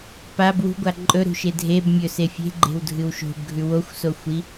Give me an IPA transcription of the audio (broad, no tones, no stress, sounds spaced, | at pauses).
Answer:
p a b w ṳ ɡʷ a ǃʼ ɵ ɾ ṳ ʃ e dʱ e b mʲ ɵ s e fʲ e̤ ɡ͡ǃ e̤ w dʱ ɨ w ʃ o̤ b ɡʱ ʉ w o xʷ s o xʷ i